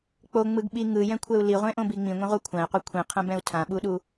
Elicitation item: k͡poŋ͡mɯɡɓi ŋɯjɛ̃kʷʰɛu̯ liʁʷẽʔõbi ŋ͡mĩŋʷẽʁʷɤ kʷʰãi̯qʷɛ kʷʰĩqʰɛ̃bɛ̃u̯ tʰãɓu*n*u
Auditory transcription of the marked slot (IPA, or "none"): ɗ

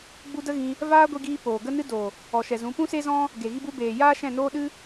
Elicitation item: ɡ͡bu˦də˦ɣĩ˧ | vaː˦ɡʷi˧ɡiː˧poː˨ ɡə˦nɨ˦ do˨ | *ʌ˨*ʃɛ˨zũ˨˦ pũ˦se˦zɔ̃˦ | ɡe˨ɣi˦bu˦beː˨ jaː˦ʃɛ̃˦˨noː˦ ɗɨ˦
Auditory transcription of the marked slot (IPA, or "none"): ɔ˨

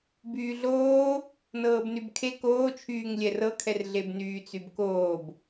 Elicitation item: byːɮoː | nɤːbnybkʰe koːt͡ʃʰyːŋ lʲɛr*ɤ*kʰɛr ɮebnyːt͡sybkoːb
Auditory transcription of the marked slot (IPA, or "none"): ɤ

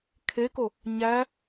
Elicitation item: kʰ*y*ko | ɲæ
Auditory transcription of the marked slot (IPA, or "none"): e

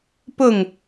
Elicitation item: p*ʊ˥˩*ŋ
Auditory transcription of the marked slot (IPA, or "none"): ʊ˥˩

